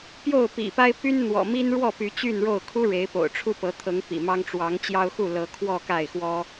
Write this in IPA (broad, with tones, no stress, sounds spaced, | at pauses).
p j o˥˨ ʊ̯ p ḭ˨˩ p a˦ ɪ̯ p y˦ n n̪ w ɔ̰˨˩ m i˦ n ɻ w ɔ˥˨ p y˨˦ t͡ɕ y˥˨ n ɻ o˥˨ ʊ̯ kʰ u˦ ɻ e˨˦ ɪ̯ p o̰˨˩ ʊ̯ ʈ͡ʂʰ u˦ p ɤ˨˦ t̪ʰ ɤ˨˦ ŋ p ḭ˨˩ m ɑ˦ ŋ ʈ͡ʂ w ɑ˨˦ ŋ t͡ɕ j ɑ˦ ʊ̯ x u˥˨ l ɤ˨˦ kʰ w ɔ˥˨ k a˥˨ ɪ̯ x w ɔ˦